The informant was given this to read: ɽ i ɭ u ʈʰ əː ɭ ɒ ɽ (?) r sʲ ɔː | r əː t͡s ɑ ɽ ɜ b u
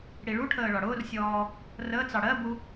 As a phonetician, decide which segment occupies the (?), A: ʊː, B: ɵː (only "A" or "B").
A